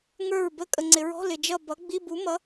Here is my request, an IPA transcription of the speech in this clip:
ŋə˞˥˨ɹbə˦˥ kʼə˨ŋ͡ǀɪ˨ɹɔ̤˧˥˧ lɪ˨d͡ʒʌ˥˨ bʌ˨˥ɡ͡bi˧˥˧bu˨˥mʌ˨˥

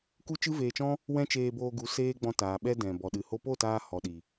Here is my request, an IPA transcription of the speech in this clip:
ku˦t͡ʃɨ˦veː˧t͡ʃɔ̃˦ | wɛ̃˦t͡ʃeː˧boː˧ɡu˨˦ seː˦ɡ͡bɔ̃˧ taː˨ɓɛ˧ dɛ̃˨ bɔ˨ɗɨ˨ ho˧po˦˨taː˧ hɔ˨ɗi˨

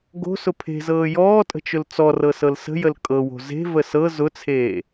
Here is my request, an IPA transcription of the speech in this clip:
ɡo̤sʊ pʰe̤zɤː jɔːtʼə̤t͡ʃʊl t͡sɔrɤsɤl sə̤jəl kʼɤwo̤ ze̤və sɤ zʊt͡sʰeː

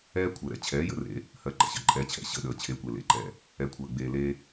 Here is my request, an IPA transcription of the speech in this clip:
ɛː˦ kʷʰəː˨ɾɛ̰˨ t͡ɕʰɛː˨˦jə̰˧rḛ˨˦ | hɜ˨ ǃə̰˨ɕə̰˨ǃʼɛː˨t͡ɕʰɛ̰˨ ɕə̰˦˨ɗəː˨ t͡ɕʰe˨˦kʷe˨ lḛ˨ǃɛ̰˦˨ | ɛ˨kʷʰəː˨ɡ͡beː˨leː˧

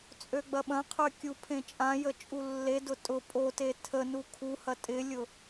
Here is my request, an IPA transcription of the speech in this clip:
t͡sʼøɡ͡bɐɓɐ̃qʰø kʲupʰẽt͡ʃʼãjə t͡ʃʼulːedʊ tʼʊ pʼote tʰənu kʰuhɐ tʼɪlʲʊ

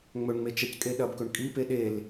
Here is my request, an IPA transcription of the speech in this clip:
ŋ͡mɵɳŋ͡me t͡ʃɐckʼeɗɐbkɵɳ kʼipe ɗel

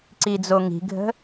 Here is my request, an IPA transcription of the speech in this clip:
ǀid͡zoŋi̤ɡʱə̤

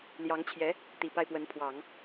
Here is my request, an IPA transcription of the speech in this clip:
ljɑ˧˥ŋt͡ɕʰjɛ˧˥ | t̪i˨˩pa˥˩ɪ̯pwə˧˥n pʰwɑ˨˩˦ŋ

